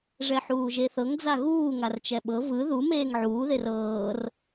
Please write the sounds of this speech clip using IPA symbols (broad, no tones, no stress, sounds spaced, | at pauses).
ʐ ɛ ħ uː ʒ e θ ɤ ŋ d͡z a ɣ uː ŋ a r t͡ʃ ɛ ɓ ɤ v ɯ ð u m eː ŋ ʕ uː ð e r ɤː r